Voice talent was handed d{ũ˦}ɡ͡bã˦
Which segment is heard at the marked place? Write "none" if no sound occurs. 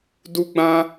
u˦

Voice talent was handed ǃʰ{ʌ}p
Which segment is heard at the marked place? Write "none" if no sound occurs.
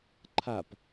a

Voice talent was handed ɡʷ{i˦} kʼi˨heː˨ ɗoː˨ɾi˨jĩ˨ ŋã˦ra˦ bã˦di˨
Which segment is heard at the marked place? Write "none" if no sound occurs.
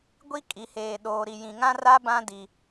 i˦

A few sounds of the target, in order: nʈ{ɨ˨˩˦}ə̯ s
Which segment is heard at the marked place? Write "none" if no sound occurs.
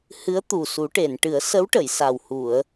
ɨ˨˩˦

